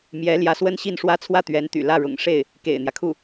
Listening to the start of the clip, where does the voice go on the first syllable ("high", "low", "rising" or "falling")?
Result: rising